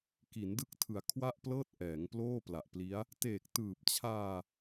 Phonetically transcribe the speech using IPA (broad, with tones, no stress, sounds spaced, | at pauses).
k i˩˦ n d ɯ˦˥ k̚ tʰ ɯ˩˦ a̯ kʰ w a˥˩ ʔ p l ɤː˥˩ t̚ ʔ ɛː˩˦ ŋ p l oː˥˩ p l a˨˩ ʔ p l i˦˥ a̯ | t eː˨˩ k̚ t ɯː˨˩ p̚ t͡ɕʰ aː˧